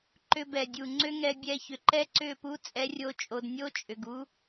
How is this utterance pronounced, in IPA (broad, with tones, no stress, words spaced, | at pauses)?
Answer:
ǃʏ˧bɛ˨dʲu˨ ŋ͡ǀʏ˦ŋɛ˧bʲɛ˧çʏ˨ ǃɛ˦ǀʏ˦˨pu˦ t͡sʼɛ˦rʲo˦t͡ʃʼo˧d nʲo˦t͡ʃʼʏ˨ɡ u˦